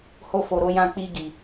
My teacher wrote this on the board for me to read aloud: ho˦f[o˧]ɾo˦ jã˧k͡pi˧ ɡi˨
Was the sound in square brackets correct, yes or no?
yes